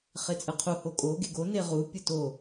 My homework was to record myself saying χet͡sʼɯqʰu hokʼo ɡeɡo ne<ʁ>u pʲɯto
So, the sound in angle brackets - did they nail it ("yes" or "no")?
yes